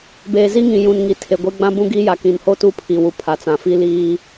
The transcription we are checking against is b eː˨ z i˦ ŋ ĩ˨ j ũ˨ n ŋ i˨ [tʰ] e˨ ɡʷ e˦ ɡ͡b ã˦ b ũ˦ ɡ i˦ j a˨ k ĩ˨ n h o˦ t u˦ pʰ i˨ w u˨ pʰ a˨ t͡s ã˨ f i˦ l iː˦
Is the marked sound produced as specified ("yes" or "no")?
yes